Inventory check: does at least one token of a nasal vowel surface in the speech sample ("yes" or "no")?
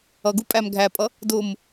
no